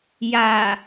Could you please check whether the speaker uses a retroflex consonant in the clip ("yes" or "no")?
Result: no